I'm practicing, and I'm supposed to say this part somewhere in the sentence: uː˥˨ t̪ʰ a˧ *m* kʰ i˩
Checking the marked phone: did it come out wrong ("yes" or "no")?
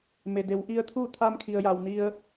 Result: no